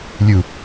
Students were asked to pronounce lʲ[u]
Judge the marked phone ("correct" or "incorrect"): correct